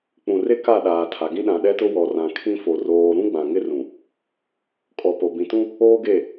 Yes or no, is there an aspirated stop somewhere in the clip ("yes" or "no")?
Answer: yes